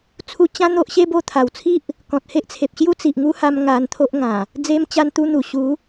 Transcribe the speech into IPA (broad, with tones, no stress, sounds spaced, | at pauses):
t͡sʰ u˧ t͡ɕ ã˦ n̪ o˦ ʔ ɕ e˦ b o˧ t̪ʰ a˨˩ w t͡sʰ i˦ ʔ | k ɔ̃˨ t̚ h e˦ ʔ t͡sʰ e˨ p̚ ɕ j u˦ t͡s i˨ ʔ ŋ u˦ h a˧ m ŋ a˧ n t̪ʰ o˦ ʔ ŋ ã˨˩ | d͡z e˧ m t͡ɕ a˧ n t̪ u˧ n̪ u˨˩ ɕ u˨˦